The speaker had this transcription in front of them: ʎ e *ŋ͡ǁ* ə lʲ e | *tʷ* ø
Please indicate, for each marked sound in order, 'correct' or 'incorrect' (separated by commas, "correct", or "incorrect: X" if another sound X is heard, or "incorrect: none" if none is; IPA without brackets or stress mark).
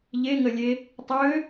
incorrect: ŋ, incorrect: tˤ